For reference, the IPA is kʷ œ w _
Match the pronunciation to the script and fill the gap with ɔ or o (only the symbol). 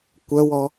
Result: ɔ